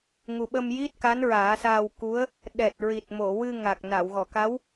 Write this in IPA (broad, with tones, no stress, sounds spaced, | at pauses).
ŋ u˨˩ ɓ ə˧ m j i˦˥ t̚ k a˧˥ n ɹ aː˨˩˦ s aː˧ w k u˧˥ ə̯ | ɗ ɛ˨˩ t̚ ɹ i˨˩ t̚ m o˨˩˨ w ɨ˧ ŋ a˨˩ k̚ n a˨˩˨ w ɣ ɔ˨˩˨ k a˧˥ w